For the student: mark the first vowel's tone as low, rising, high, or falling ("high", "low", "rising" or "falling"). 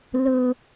high